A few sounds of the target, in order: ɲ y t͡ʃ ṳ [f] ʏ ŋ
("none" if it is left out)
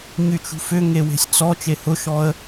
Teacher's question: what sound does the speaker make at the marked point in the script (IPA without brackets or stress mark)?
f